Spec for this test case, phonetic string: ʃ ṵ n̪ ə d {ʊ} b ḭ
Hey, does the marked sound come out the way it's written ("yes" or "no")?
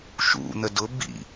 yes